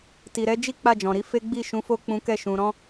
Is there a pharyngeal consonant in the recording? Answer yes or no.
no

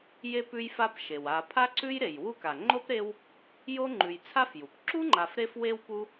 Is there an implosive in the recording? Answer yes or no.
no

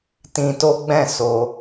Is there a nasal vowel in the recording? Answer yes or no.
yes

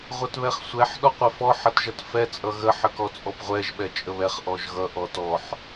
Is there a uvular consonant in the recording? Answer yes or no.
yes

